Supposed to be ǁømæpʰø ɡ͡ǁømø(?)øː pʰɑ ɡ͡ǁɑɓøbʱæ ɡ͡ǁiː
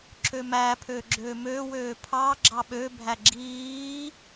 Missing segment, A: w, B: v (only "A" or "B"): A